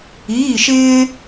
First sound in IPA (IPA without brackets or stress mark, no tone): iː